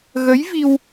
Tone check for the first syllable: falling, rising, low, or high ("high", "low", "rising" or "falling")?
rising